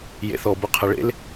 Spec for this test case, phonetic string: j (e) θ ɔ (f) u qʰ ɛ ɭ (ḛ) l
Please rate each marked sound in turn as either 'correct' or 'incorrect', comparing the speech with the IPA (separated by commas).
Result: incorrect, incorrect, correct